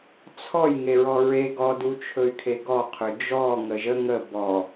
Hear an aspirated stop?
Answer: yes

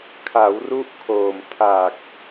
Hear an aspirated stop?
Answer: yes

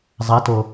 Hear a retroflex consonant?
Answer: no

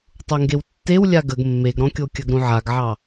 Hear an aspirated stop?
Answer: no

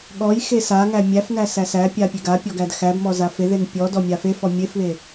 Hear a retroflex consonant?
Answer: no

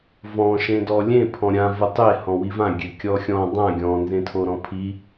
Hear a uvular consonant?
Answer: no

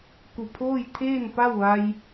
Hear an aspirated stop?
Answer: yes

